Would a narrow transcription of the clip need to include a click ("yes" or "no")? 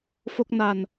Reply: no